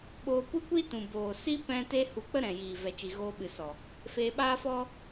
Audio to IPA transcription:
ɓoː˧kʷɨ˦kʷi˦tũ˨ boː˨si˦ pɛ̃˦ te˦hu˧k͡pə˦ ɾɛ̃˨jiː˨ vɛ˨t͡ʃi˨ ɣoː˧ɓɨ˨sɔ˨ | feː˧ɓaː˦fɔ˦

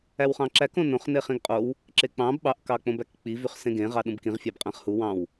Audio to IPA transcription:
æwχɑ̃ǁæk õnõχ neχĩɡqʼow | ǁek͡pɑ̃b ɓɑʔ kɑk͡põbækk͡pi vyχsẽɡẽ ʁɑɗũbkĩʁ fʲɑbqʼæ̃χhu wɑ̃w

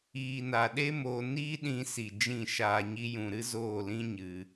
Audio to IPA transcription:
iː˨na˨ɗe˦ moː˧ niː˦ɗĩ˧si˨ d͡ʒĩ˦˨ʃaː˧ɲi˦jũ˧ ɾɨ˦zoː˦˨lĩ˦ ɲɨ˧

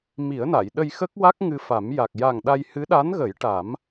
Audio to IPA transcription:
mi˨˩˦ə̯na˨˩˨j ɗə˧jxə˦˥k̚wa˦˥k̚ ŋɨ˧fa˨˩˦m ja˨˩k̚ja˨˩ŋ ɗa˧j hɨ˧˥ɗa˧˥nɣə˨˩˦j ʈa˨˩˦m

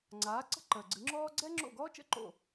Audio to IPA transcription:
ŋ͡ǀaː˩˥ ǀə̤˥ǃəː˩ɡ͡ǀɨ˩˥ŋ͡ǁɔː˥ ɡ͡ǀɛ˥ŋ͡ǁo̰˥˩ ɡɔː˥t͡ʃə̰˥˩ ǃo̰˥˩

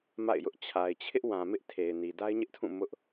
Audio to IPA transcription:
ma̰˦˨ɪ̯jʊ˦ʔ t͡ɕʰa˨ɪ̯t͡ɕʰɪ˦ʔwã˨ mɪ˦ʔtʰe˨ɪ̯ ni˨da˦ɪ̯ɲɪ˦ʔtʰũ˦˨ mʊ˦ʔ

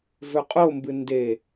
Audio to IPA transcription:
vɵqʼombɨ nde

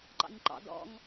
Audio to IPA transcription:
ǃɑ̰ɲǃɑ̰ dɔ̰ŋ

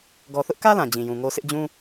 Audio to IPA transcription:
ɡɔ˨θʊ˦ʔkä˦ lã˨d͡ʑĩ˨jũ˨ŋo˦ sʰɪ˦ʔd͡ʑũ˦

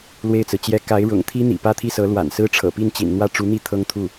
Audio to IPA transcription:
lwe˥˩ɪ̯t͡sɹ̩˩t͡ɕjɛ˥ ka˧˥ɪ̯ɻʊ̰˨˩ŋ t̪ʰi˥n̪ḭ˨˩ pä˥t̪ʰi˥˩sɤ˧˥ lwa̰˨˩nsɹ̩˥ʈ͡ʂʰɤ̰˨˩pi˥˩n t͡ɕḭ˨˩nn̪wä˥˩ʈ͡ʂu˧˥n̪i˥˩ t̪ʰɤ˥ŋt̪ʰu˥˩

